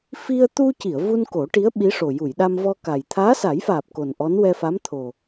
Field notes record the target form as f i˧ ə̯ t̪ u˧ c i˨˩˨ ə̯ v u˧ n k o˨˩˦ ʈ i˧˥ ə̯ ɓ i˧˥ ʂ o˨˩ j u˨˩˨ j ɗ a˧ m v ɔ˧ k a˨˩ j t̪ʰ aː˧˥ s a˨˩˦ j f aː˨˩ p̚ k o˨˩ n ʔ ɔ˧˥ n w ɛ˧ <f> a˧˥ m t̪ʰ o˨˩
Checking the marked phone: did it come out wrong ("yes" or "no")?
no